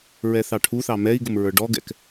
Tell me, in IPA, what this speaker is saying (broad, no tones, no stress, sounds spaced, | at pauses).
ɹ ɛ θ ɑ ʈʰ u θ ɑ m ɛ i̯ ɡ ʊ m ɹ ə˞ ɖ ɔ ɡ ɛ̰ k